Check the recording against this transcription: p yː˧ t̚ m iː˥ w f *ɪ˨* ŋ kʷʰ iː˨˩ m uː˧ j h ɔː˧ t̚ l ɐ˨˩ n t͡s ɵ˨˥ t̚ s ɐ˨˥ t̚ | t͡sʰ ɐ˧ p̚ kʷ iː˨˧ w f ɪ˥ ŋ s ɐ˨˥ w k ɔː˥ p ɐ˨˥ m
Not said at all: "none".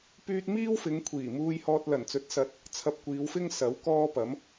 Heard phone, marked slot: ɪ˨˧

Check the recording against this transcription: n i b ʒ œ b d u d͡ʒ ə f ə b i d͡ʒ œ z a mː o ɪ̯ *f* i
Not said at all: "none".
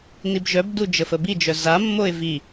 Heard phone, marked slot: v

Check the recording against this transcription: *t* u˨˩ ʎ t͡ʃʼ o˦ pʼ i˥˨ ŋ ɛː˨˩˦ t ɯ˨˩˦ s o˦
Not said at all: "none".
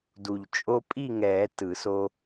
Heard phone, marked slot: d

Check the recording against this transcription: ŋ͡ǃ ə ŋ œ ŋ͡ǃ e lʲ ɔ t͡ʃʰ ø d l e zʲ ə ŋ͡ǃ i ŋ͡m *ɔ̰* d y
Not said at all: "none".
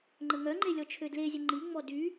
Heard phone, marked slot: ɔ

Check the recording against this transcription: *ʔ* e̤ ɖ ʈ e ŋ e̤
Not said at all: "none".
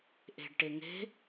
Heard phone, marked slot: ʔ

